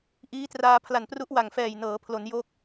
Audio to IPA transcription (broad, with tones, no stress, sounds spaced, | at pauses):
ʔ iː˦˥ t r aː˧ pʰ l a˨˩ n p r u˦˥ ʔ w a˨˩ ŋ f ɛː˨˩ j n ɤː˩˦ pʰ l o˩˦ n j oː˦˥ k̚